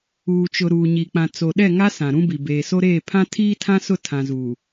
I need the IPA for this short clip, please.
uː˨ t͡ʃ ʊ˨ ɾ uː˨ ɲ i˨ k͡p ã˨ t͡s o˨ ɗ ɛ˦˨ ŋ a˦ s ã˨ ɾ ũ˦ b i˨ b eː˨ s o˦ ɾ eː˦˨ pʰ ã˦ tʰ iː˦ tʰ ã˦ s ʊ˦˨ tʰ ã˨ z uː˨

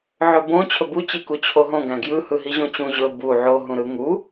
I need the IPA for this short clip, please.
ʕ ɵ b õ t͡ɕʰ ɵ b u t͡ɕ i k u t͡ɕʰ o ɦ õ ɡ æ̃ ɡ j ɯ h ɯ ɦ i ʑ õ t͡ɕ ũ ʑ ɵ b u ʕ o ɦ ũ ɾ ɯ ŋ u

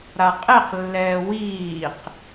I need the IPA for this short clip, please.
ɾ a qʼ e q lː ɛː w iː q

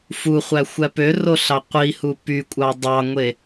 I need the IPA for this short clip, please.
f u χʷ æ xʷ æ p ø r o ɬ ɑ qʷ i h u p y kʷʼ ɑ dˤ ɑ ŋʷ e

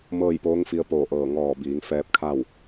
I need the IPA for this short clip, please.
m ɤː˥˨ j p oː˧˥ ŋ f i˧ ə̯ p oː˧˩ ʔ ɤː˧˩ ŋ ɔː˧˩ b iː˩˧ ŋ f ɛː˧ p̚ kʰ a˥˨ w

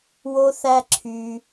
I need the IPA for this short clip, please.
w o˥ θ æ˥ ǁʰ y˧

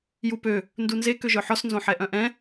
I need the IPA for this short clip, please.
j u p ø | n d u n z e k ø ʒ œ ħ ɔ s n z õ ħ ɛ ʔ œ̃ ʔ ɛ̃

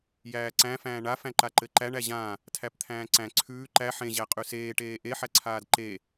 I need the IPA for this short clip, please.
j æː ǀ æ̃ f æ̃ː ɳ a f æ̃ ǃ a ǃ ɘ ǃ æ ɳ æ ʑ ã | tʰ æ p t̪ʰ æ̃ː ǀ æ̃ ǀʰ ʉː ǃ æ ħ ẽ ʑ æ qʼ ʉ s eː ʈ eː ʔ e ħ æ ǀʰ aː d ǃ e

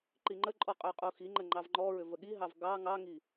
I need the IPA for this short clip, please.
ǃ i ŋ͡ǃ ə ǃʼ ɔ qʼ ʏ ʊ̯ qʼ u x i ŋ͡ǃ ə ŋ͡ǃ ɑ v ŋ͡ǃ ɔ ɹ ʏ v ə ɠ i ɦ ɑ v ɡ ɑ ŋ ɑ ŋ i

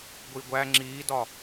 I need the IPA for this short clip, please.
ɡʷ i ɡʷ æ ŋ͡ǁ iː d ɒ

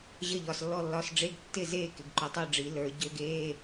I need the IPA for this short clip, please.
ʑ ə˥˨ ʎ ɒ˩˧˩ s lː ɔ˥˨ lː ɒ˧˥˧ s ɖ͡ʐ e˧˥˧ ɡ tː ɪ˥˨ z eː˥˨ k ɪ˩˧˩ ɡ ǃ u˩˧˩ tˤ ə˞˥˨ ɖ͡ʐ i˨˩˦ l ə˞˨˩˦ ɟ ø˧˥˧ ɡ eː˧˥˧

